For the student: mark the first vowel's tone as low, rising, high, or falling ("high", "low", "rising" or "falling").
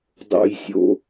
low